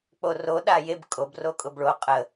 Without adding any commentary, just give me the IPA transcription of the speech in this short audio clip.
k͡p o r o ɗ a j e b kʼ o b r o kʼ ʊ b ɭ o qʼ ə

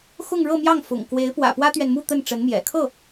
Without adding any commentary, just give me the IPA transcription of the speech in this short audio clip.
x ʊ˥˧ ŋ ɻ ɤ˥˧ m j ɑ˥˩ ŋ f ʊ̰˨˩ ŋ k w e˧˥ ɪ̯ p w ä̰˨˩ p w ä˥ t̪ ɥ ɛ˨ n m u˥˧ t̪ ə˥˩ n ʈ͡ʂ ə˧˥ n m j ɛ̰˨˩ kʰ ɤ˥˩

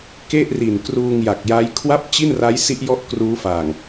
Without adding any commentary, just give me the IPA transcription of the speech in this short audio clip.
k e˥˩ ʔ r i˨˩ n k r uː˧ ŋ j a˨˩ k̚ j a˦˥ j kʰ w a˥˩ p̚ t͡ɕ i˥˩ n r a˦˥ j s i˦˥ ʔ j ɔ˥˩ ʔ k r uː˦˥ f a˨˩ ŋ

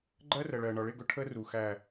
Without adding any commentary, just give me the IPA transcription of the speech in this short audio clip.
ɡ͡ǃ ɜ˦ r ə˨ ɭ ɜ˨ ɳ ɒ˨ ɭ ɪ˦˨ ɡ ʊ˦ ʈʰ ə˦ r u˨ x æ˨

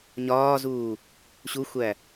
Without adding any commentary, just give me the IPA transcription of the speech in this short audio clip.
ɲ ɒː z uː | ɕ u xʷ æ

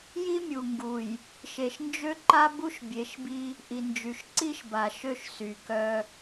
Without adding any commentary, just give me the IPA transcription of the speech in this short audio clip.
j i˦ mʲ u˨ ŋ ɡ u˨ j | ʃ e˨ ʃ n d͡ʒ ø˦ ǃ a˦ b u˦ ʃ bʲ e˨˦ ʃ b i˦ | ʔ i˨ n d͡ʒ y˨ ʃ ǀ i˦ ʃ b a˨ ʃ ø˦ ʃ s y˨ k œ˦

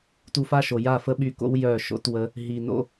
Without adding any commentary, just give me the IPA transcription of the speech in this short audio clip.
t u˧ f a˦ ʃ o˨ j a˦˨ f ə˦ ɓ y˧ k o̰˦ w j œ˦˨ ʃ o̰˦ t w ə˦ | ɦ i˧ n o̰˧

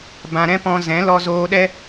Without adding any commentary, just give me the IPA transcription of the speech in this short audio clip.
b ã˧ ɾ ɛ̃˦ p ɔ̃˧ z ɛ̃˨˦ l ɔ˧ z oː˧ ɗ ɛ˦

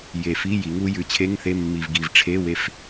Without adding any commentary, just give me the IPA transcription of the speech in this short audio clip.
j e˨˩ f i˧˥˧ j i˩˥ ŋ u˥ j ʉ˩˥ t͡ɕʰ e˧˥˧ ŋ θ e˧˥˧ mː i˨˩ v ɡ i˨˩ v ʈ͡ʂʰ e˧˥˧ w e˦˨ f

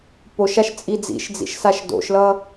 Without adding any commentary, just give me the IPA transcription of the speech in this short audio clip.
p o ʃ a ʃ t͡sʼ i d͡z ḭ ʃ d͡z ḭ ʃ s a ʃ d o̰ ʃ l ʌ

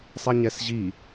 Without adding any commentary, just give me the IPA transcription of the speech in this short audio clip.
sˤ ɛ ɲ ɛ s ʑ i

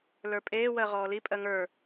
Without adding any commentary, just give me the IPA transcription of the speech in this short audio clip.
l ə˞ pʼ eː w ɜ ʁ ɔː l i pʼ ɜ ŋ ə˞

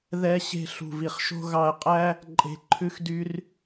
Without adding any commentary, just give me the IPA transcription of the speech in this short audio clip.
ð ɛ˧ ɕ e̤˧ ɬ ṳ˨ v i˨ χ ʃ o̤˧ ɣ ɑ˧ ə̯ qʼ æ˦ | ǃʼ e̤˨ ǃʰ ʉ˧ x d y˧ r

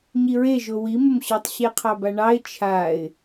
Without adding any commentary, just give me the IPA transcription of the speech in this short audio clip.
ɲ i ɹ e ʒ o w i m ə m ɕ ɒ tˤ ɕ e qʰ ɑ b a ɳ ɑ ɪ̯ t͡ʃʰ a ɪ̯

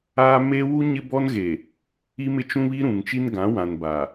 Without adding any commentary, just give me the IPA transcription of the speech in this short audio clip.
aː˦ m e˦ w u˦ ɲ ɪ˦ b ɔ˦ n ɣ e˨ | i˦ m ɪ˦ t͡ʃ ũ˦ β i˦ ɾ ũ˨ ŋ t͡ʃ i˦ n ɡ ã˨˦ w ã˨ n b a˨

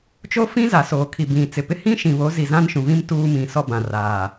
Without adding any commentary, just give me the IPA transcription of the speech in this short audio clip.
t͡ʃ o˦ f ĩ˦ z a˨ s oː˨ kʰ i˨ b ĩ˨ t͡s ɪ˨ p ɪ˦ h ĩ˦ ʃ ĩ˨ β o˨˦ z i˨ z ã˦ n ʃ ũ˨ v ĩ˦ m t uː˦ m ĩ˨ s ɔ˦ b ã˨ r aː˨

